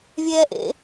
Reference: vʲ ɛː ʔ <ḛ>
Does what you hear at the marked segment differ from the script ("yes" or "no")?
no